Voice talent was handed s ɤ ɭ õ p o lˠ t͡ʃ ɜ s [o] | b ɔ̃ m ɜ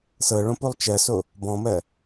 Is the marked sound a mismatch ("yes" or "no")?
no